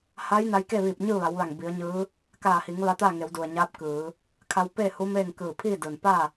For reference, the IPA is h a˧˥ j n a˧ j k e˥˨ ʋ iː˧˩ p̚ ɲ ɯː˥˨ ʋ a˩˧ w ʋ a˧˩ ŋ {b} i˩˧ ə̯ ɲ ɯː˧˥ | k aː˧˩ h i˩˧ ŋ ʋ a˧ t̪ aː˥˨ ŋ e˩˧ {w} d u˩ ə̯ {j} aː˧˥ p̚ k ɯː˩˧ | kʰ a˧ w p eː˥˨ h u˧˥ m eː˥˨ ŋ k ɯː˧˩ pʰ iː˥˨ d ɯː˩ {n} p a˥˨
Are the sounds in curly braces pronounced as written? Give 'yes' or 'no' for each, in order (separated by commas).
yes, yes, no, yes